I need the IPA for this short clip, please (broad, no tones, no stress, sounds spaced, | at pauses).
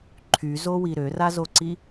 ǃʰ y z o w i ɾ ø r a z o ǀ i